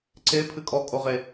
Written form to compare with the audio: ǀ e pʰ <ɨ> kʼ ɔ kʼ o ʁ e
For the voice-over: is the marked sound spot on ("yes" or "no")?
yes